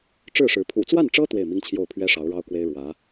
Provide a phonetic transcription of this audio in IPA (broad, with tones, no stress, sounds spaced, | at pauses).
ʈ͡ʂ ɻ̩˥˩ ʂ ɻ̩˧˥ pʰ ṵ˨˩ t͡s w a˥˩ n ʈ͡ʂ ɤ˥ t̪ w e˥˩ ɪ̯ m i˥ ŋ t͡ɕʰ j o˥˩ ʊ̯ pʰ ɥ ɛ˥ ʂ ɑ˧˥ ʊ̯ ɻ ɑ˥ ʊ̯ k w e˥ ɪ̯ ɻ w ä˧˥